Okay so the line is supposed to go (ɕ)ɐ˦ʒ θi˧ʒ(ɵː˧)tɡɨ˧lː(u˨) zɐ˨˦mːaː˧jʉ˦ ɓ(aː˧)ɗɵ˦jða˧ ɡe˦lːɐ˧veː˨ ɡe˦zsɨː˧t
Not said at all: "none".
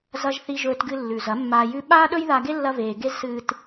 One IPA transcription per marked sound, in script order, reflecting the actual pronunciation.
z, ɵː˧, ʉ˨, aː˦

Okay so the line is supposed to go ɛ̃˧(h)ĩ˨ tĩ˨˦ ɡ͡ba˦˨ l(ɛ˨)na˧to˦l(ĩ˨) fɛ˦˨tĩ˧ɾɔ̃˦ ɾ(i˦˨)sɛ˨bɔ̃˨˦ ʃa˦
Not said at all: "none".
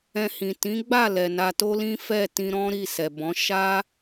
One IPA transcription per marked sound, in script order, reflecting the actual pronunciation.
h, ɛ˨, ĩ˦, i˦˨

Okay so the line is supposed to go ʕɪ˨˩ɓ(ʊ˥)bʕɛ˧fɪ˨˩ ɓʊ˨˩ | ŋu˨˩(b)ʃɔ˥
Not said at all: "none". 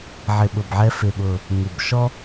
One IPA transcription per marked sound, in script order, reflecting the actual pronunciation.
ʊ˨˩, b

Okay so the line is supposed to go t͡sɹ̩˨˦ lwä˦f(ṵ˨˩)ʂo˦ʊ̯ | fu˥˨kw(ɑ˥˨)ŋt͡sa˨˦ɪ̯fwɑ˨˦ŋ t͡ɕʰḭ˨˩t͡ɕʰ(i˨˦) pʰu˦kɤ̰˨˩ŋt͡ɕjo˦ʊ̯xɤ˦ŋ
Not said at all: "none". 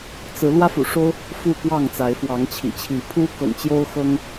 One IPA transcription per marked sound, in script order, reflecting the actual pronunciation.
ṵ˨˩, ɑ˥˨, i˨˦

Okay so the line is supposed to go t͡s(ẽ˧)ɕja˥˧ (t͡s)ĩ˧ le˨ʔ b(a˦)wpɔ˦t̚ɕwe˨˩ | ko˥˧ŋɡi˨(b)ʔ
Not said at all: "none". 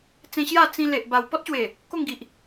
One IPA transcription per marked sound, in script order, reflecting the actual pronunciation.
ẽ˧, t͡s, a˨˩, none

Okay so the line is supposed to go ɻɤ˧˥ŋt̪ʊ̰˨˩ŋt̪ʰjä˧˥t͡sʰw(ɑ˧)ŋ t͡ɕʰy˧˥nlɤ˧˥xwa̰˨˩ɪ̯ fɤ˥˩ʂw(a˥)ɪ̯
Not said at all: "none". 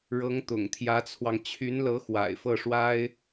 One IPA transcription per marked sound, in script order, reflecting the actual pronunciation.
ɑ˧, a˥

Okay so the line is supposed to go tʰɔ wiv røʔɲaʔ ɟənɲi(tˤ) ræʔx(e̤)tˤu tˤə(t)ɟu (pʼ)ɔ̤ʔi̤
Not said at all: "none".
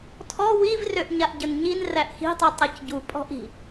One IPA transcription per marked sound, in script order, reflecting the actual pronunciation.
n, i̤, c, pʼ

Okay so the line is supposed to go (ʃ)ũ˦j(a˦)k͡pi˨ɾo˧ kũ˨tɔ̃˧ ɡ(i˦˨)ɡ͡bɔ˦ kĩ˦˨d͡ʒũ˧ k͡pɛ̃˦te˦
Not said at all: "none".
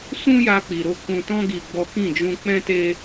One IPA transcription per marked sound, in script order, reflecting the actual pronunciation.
s, a˧, i˧

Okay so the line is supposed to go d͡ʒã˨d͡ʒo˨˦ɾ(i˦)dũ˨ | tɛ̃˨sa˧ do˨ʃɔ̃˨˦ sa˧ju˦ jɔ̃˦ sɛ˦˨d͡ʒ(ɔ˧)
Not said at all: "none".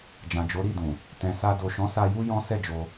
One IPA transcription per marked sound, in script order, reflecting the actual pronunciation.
i˦˨, o˧

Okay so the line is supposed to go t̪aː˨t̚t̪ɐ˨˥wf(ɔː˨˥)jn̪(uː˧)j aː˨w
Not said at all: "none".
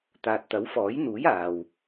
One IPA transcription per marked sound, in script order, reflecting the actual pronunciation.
ɔː˨˥, uː˨˥

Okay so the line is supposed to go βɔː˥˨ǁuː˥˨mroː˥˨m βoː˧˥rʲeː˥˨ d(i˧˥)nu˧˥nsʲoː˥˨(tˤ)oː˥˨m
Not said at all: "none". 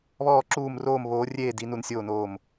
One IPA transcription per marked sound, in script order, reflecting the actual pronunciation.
i˧˥, n

